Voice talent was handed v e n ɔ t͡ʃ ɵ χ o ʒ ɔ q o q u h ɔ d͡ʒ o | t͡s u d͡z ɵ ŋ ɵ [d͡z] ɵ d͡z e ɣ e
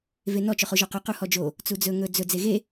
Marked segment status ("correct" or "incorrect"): correct